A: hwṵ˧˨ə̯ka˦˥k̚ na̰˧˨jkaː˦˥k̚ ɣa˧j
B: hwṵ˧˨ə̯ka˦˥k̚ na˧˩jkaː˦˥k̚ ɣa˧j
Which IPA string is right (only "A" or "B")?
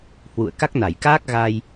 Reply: B